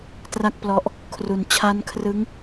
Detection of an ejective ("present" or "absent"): absent